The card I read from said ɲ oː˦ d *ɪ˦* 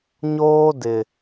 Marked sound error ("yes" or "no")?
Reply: yes